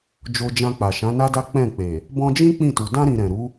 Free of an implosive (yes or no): yes